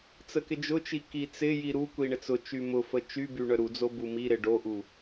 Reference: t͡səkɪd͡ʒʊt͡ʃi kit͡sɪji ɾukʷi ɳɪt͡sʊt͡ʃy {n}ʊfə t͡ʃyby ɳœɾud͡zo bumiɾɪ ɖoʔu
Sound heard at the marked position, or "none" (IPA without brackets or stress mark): m